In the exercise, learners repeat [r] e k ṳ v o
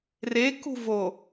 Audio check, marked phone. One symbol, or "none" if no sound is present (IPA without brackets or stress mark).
r